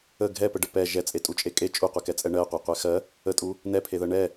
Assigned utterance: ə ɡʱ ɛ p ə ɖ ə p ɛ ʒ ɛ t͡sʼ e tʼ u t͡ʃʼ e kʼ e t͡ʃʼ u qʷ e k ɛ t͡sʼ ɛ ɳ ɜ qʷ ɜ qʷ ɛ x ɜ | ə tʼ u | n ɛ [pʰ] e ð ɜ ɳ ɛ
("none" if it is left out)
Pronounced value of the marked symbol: pʰ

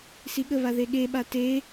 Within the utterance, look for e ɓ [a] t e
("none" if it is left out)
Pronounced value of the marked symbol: a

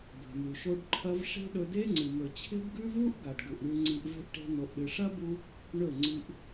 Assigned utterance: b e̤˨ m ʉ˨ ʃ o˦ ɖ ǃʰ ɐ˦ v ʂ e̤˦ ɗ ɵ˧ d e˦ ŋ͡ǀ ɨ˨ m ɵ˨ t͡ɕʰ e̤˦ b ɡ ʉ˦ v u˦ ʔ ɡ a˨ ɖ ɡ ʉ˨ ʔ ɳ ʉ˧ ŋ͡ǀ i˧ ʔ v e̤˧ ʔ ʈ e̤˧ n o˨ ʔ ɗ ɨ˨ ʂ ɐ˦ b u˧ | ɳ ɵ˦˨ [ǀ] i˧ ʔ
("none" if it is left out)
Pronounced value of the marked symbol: ŋ͡ǀ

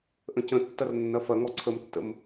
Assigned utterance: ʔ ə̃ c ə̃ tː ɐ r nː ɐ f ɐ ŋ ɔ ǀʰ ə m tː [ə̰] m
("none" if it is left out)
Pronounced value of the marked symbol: ə̰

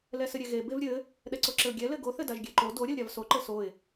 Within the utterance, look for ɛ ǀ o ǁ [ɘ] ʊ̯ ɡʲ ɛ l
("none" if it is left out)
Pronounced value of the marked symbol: ɘ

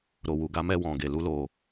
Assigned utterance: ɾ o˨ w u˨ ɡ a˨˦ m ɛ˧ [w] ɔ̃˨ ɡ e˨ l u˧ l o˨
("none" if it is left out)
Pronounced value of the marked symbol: w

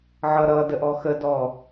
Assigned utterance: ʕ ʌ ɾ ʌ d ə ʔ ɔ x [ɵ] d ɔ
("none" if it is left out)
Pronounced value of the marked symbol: ə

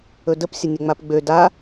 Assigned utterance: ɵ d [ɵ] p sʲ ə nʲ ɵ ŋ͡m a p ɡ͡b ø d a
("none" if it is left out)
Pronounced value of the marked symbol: ə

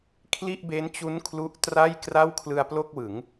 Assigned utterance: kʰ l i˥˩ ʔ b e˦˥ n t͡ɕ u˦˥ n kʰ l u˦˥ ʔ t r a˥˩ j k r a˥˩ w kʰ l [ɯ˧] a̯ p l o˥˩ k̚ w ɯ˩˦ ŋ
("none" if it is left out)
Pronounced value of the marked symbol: ɯ˧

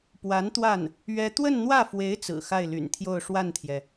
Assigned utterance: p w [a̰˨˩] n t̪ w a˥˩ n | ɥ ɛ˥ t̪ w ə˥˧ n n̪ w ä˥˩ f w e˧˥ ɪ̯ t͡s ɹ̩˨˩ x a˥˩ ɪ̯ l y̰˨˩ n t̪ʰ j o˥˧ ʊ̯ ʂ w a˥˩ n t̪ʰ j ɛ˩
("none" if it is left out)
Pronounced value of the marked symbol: a˧˥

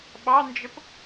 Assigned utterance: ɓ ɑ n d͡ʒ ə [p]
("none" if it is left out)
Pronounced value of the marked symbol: p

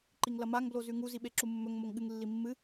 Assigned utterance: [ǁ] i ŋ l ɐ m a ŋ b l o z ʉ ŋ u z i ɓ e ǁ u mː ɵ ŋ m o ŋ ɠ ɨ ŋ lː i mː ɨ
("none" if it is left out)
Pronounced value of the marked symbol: ǃ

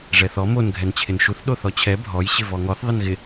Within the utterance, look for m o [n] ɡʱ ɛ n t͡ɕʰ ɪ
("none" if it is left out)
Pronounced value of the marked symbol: n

